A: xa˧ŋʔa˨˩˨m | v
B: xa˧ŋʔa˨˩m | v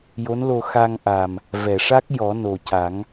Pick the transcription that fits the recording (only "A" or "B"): B